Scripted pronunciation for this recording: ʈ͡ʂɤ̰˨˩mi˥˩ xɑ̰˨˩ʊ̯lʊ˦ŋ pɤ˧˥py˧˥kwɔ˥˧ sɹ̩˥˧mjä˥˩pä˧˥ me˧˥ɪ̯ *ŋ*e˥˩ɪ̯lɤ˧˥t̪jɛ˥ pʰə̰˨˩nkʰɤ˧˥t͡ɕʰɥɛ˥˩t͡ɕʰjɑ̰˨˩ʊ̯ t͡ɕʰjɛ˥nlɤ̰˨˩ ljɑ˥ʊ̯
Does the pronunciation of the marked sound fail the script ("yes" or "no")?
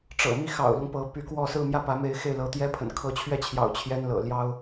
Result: yes